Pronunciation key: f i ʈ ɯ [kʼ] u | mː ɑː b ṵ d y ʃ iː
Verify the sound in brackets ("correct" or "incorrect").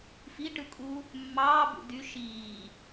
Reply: correct